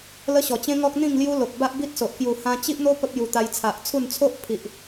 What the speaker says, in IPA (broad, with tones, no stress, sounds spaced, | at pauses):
l ə˦ ɕ ɔ˨˩ t͡ɕ ẽ˦ ŋ ɔ˦ k̚ n̪ ĩ˥˧ ŋ l j u˦ l o˨ k̚ b a˦ ʔ b i˦ t̚ s o˨ ʔ k j u˨˩ h ã˧ t͡ɕ i˦ ʔ n̪ o˦ p ə˦ p̚ j u˧ t̪ a˧ j t͡sʰ a˨ ʔ t͡sʰ u˥˧ n t͡sʰ o˦ ʔ pʰ i˨ ʔ